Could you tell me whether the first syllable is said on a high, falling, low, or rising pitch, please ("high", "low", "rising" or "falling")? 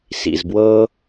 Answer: low